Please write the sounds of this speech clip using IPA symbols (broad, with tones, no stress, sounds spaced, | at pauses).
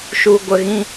ʃ u˧ ɡʷ ə˧ ɣ ĩ˦